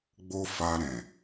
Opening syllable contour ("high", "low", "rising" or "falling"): high